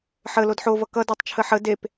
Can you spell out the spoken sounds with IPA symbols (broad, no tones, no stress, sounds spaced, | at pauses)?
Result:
ħ ə l o d ħ o v ʌ k ʌ d a tˤ t͡ʃʰ ə ħ ə d e p